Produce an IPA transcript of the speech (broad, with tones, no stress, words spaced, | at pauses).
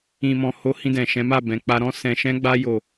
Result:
ĩ˨mɔ̃˨ ho˨˦ hĩ˧dɛ̃˨ʃɛ̃˨˦ ma˦˨bɛ̃˨k͡pa˧ ɾɔ̃˦sɛ̃˧ʃɛ̃˦ɡ͡ba˦ jo˦˨